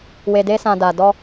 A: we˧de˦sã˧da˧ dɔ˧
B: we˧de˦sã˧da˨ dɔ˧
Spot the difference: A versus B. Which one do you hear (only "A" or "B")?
B